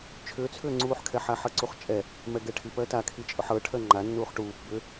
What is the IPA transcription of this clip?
t͡ʃʰ ʏː t͡sʰ ʏː ŋ͡ǀ uː ħ kʰ ɛ ħ a ħ ɤ ǀ u χ t͡ʃʼ ɛ | m ɛ ɡ ɛ ʈʰ i p ɜ t a kʰ i t͡ʃʼ ʊ ħ ɤ ʈʰ ɜ ŋ͡ǃ a nː uː χ ʈ uː p b ʏ

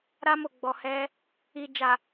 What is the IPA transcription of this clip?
ɾ a˧ m o˨ ɡ͡b ɔ˨ h ɛ˧ | i˨ d͡ʒ a˨

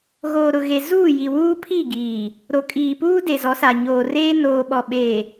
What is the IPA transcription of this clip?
ɣ oː˨ ɾ ʊ˨ ɣ e˨ z uː˦˨ j i˨ w uː˦ pʰ i˦˨ ɡ iː˨ | ɾ o˨ kʼ iː˨ p uː˦ d e˨ z ɔ˨˦ s a˨ ɲ oː˨ r eː˦ n oː˨ ɓ ɔ˨ ɓ eː˨

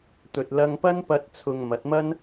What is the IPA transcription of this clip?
t̪ ɵ˨ t̚ l ɐ˧ ŋ p ɐ˥ n p ɐ˧ t̚ t͡sʰ ʊ˨ ŋ m ɐ˨˥ t̚ m ɐ˥ n

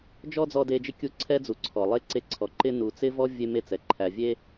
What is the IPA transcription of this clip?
d͡ʒ ɔ˥ d͡z ɔ˦ d e˦ d͡ʒ ɪ˥ kʲ u˦ ǀʰ ɛ˥ d͡z u˨ ǀʰ ɔ˩ lˠ e˥ ǀ e˦ ǀʰ ɔ˨ ǃ ɪ˦ n u˨ t͡s ɪ˥ v ɔ˥ vʲ e˦ m e˦ t͡s ɛ˩ ǃʰ æ˨ vʲ e˥

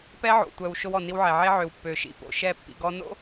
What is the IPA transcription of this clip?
p ɛ˦ ʕ o̰˨ tʷ œ˨ w ʃ o˦ w ɔ˨ n i˦ w ʕ ɛ˨ ʕ e˦ ʕ ø˨ w pː ø˨ ʃ ḭ˦˨ p o̰˨ ʃ ɛ˦˨ pː ḭ˨ ɡ ɔ˦ n o̰˦

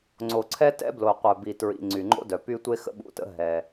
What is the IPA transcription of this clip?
ŋ͡ǀ o˩ ǀʰ ɛ˥ t ɛ̰˥ b l o˩ qʷ œ˩ b i˩ t ɹ ḭ˩ ŋ͡ǀ y˩ ŋ͡ǃ o̰˥ d œ˩ p y˥ tʷ e˥ x ə̰˥ ɓ ṵ˩ t ə̰˥ ɦ ɛ˩

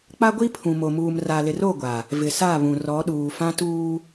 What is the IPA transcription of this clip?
k͡p a˦ ɡʷ i˦ pʰ ũ˨ m o˨ m uː˨ m r a˨ l ɪ˨ r o˦˨ ɡʷ a˨ | v ɪ˨ s a˦˨ β ũ˨ r ɔ˨˦ ɗ uː˨ f ã˦ t uː˦

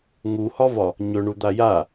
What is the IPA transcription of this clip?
ŋ u h ɒ v ɒ | ɲ ɵ ɳ u d̪ a j a

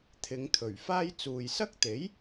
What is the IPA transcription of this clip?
t̪ʰ ɪ˨˧ ŋ t̪ʰ ɵ˨˩ ɥ f aː˥ j t͡s uː˨ j s ɐ˥ k̚ t̪ e˨˥ j

